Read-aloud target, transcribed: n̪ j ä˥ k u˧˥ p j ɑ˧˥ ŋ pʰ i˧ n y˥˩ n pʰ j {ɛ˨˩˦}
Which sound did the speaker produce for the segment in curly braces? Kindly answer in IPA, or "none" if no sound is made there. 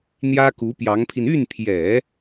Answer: ɛ˨˩˦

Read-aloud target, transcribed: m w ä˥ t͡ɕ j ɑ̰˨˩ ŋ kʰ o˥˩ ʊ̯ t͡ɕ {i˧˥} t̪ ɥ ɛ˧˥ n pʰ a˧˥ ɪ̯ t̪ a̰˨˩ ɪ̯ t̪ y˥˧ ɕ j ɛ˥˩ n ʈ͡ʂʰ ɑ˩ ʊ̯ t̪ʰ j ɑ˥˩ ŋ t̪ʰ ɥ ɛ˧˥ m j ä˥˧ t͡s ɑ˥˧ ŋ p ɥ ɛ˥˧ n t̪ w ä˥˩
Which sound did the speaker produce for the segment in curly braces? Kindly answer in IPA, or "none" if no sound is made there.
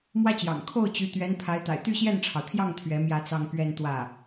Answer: y˧˥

